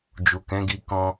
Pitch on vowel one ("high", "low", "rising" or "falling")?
low